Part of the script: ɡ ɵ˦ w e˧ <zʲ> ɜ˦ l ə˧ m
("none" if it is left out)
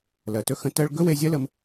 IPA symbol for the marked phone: zʲ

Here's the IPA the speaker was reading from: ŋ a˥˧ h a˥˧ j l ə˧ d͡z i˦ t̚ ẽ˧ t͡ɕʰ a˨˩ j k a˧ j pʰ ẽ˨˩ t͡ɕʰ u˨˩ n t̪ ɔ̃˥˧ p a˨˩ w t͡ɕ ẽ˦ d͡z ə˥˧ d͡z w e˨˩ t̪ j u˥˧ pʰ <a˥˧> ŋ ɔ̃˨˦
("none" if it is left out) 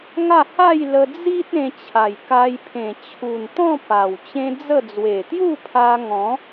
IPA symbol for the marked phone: a˧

